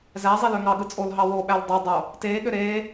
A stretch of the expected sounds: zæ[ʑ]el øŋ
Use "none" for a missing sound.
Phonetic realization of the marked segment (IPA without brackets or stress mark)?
zˤ